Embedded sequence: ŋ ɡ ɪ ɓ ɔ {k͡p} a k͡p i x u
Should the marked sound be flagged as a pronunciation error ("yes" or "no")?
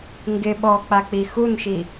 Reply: no